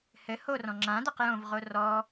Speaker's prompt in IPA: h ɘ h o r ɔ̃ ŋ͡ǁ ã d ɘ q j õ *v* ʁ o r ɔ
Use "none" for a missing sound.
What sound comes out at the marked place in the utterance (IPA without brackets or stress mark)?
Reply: v